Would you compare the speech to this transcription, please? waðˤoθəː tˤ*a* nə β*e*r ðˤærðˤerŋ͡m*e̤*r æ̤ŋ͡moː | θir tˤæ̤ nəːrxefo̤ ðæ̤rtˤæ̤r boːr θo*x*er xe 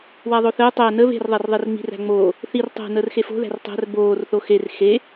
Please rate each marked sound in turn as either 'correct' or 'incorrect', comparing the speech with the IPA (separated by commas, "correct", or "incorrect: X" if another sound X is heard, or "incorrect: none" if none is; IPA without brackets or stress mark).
incorrect: æ, incorrect: e̤, incorrect: i̤, correct